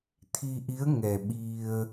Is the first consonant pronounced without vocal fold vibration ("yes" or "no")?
yes